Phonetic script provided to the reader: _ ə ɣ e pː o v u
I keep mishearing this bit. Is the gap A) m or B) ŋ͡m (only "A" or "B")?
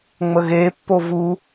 B